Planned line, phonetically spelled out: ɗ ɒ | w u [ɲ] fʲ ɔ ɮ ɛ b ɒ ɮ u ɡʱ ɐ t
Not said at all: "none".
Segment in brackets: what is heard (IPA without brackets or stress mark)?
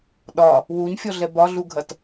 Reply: ɲ